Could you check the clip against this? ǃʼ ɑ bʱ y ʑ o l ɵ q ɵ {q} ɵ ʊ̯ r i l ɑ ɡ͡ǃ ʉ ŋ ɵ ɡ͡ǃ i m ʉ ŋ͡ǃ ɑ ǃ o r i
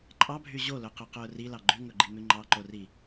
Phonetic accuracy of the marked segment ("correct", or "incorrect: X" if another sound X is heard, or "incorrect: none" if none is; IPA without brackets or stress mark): correct